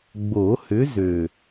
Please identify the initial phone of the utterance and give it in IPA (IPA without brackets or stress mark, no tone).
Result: ɡ͡b